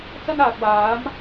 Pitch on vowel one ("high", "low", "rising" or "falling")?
high